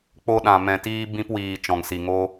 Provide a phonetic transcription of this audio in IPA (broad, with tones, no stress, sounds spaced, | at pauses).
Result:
k͡p o˦ ɗ ã˧ m ɛ̃˧ t iː˦ b ĩ˦ p w iː˧ t͡ʃ ɔ̃˧ ŋ s i˧ ŋ o˦